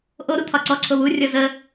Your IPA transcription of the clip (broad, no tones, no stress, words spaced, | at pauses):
ʔoɾu t̪ʰɒǀɔǀʰo wurʲɔ zə